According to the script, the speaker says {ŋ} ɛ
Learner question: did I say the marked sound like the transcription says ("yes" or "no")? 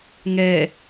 yes